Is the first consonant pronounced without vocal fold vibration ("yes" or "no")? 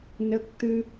no